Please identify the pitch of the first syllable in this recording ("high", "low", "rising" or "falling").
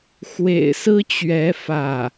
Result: low